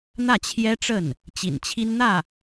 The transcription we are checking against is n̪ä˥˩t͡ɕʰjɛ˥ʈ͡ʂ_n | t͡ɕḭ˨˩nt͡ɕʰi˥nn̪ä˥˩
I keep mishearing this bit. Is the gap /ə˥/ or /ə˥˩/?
ə˥˩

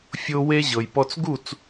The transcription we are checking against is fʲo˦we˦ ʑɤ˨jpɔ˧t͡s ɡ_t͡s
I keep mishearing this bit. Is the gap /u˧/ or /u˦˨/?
u˦˨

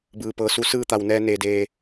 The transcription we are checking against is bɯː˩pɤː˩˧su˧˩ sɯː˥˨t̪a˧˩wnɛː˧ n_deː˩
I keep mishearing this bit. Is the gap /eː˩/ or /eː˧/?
eː˩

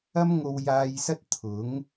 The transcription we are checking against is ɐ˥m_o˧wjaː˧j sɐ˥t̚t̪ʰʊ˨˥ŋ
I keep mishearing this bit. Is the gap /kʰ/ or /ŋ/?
ŋ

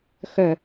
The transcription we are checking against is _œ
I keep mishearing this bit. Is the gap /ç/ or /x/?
x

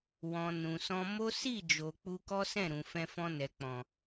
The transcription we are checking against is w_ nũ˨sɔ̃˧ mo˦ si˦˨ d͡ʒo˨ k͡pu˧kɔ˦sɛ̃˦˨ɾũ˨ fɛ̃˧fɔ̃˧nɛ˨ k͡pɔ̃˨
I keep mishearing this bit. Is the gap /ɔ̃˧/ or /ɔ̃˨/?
ɔ̃˨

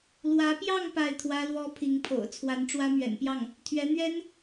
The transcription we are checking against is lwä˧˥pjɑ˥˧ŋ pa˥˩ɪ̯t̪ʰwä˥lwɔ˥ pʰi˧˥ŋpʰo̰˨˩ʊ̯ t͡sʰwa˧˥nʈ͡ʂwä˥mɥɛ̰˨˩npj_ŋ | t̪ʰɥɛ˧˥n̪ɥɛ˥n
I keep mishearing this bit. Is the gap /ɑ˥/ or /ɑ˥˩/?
ɑ˥˩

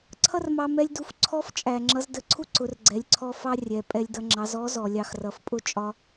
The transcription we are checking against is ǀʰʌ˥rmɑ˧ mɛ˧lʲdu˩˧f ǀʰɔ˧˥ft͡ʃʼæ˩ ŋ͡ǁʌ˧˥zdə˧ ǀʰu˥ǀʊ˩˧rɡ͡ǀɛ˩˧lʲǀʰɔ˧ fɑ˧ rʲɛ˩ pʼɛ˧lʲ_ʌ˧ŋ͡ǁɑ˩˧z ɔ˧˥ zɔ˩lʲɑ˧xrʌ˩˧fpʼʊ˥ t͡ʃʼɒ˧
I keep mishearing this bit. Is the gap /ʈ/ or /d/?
d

